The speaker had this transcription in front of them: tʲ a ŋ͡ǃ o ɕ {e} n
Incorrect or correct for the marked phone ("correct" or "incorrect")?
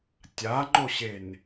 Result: correct